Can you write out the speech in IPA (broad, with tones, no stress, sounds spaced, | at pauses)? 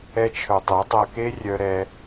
ɛ˧ t͡ʃʰ œ˨ tˤ ɛ˨˦ dˤ ɐ˧ k e˦ rʲ œ˧ ɾ ɛ˧